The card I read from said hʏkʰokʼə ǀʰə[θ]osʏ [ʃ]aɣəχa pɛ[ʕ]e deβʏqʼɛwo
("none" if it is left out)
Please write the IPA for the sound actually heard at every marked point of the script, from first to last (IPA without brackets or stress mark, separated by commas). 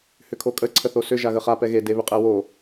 θ, ʒ, ɣ